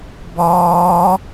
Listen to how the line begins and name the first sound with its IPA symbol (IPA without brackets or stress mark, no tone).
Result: b